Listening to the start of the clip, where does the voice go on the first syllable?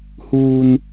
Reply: low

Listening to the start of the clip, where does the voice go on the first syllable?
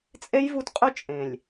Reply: high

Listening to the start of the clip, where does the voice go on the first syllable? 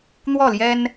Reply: falling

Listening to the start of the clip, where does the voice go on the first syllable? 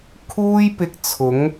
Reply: high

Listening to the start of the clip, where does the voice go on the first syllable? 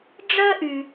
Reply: high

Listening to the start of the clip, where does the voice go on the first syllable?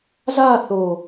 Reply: falling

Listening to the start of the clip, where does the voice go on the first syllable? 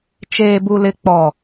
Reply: low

